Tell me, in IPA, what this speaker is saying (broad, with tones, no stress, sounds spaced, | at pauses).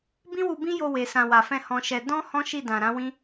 b ĩ˦ w u˧ b ĩ˦ j o˧ w e˨ s ã˨ w a˨ f ɛ̃˧ h ɔ̃˧ ʃ ɛ˧ d ɔ̃˦ h ɔ̃˦ ʃ i˦˨ d ã˨ ɾ ã˨˦ w ĩ˦